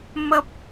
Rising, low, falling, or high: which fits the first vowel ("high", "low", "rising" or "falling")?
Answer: high